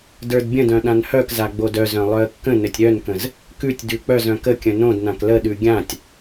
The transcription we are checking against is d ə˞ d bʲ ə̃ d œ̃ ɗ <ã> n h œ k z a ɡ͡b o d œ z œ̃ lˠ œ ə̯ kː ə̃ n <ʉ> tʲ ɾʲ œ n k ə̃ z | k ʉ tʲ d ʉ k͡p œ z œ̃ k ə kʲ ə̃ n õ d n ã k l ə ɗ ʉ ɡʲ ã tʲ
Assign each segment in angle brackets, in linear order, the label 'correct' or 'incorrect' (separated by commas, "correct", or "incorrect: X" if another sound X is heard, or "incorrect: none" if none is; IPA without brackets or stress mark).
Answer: correct, incorrect: ɘ